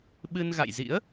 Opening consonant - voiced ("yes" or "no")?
yes